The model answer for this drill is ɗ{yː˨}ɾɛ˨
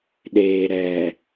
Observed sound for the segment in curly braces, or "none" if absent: eː˨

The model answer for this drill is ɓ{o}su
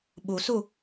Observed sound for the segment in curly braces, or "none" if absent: u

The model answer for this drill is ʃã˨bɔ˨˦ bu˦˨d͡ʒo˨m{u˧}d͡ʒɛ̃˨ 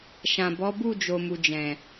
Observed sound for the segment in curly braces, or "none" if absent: u˨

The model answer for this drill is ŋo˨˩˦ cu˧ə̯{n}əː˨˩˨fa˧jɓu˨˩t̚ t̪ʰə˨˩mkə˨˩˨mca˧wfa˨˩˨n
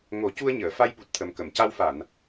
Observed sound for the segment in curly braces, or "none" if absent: ɲ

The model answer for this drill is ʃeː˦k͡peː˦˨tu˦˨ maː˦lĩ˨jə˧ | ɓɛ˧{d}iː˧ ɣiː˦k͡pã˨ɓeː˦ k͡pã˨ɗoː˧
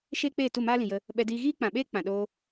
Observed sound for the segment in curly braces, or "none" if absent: d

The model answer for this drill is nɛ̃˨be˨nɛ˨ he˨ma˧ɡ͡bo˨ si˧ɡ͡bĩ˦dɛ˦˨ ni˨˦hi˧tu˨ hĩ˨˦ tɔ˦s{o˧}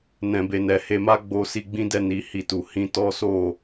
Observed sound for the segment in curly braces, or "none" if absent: o˦˨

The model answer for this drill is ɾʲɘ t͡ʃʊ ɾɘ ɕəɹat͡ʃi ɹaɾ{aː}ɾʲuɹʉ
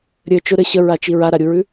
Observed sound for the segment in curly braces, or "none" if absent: a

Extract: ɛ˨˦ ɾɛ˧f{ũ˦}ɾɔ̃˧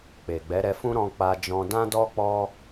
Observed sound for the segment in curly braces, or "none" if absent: ũ˦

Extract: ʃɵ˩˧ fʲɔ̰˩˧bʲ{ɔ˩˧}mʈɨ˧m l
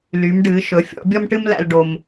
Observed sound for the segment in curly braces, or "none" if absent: ɔ˧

